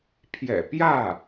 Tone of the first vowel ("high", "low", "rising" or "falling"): low